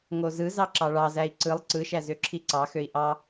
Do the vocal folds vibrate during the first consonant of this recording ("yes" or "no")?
yes